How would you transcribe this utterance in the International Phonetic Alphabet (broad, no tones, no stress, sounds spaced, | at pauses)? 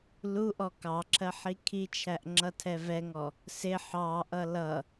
l u ʔ ɔ k ɑ ǁʰ ɜ ħ i kʰ i t͡ʃʰ æ ʔ ŋ͡ǁ ʌ tʰ ɛ v ɛ ŋ ɔ | s ɪ ħ ɑ ʔ ʌ l ʌ